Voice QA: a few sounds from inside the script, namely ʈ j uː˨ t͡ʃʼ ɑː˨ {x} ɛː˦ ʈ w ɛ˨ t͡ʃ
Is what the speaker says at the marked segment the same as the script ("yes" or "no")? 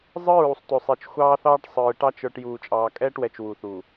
no